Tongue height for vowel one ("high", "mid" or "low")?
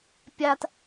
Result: low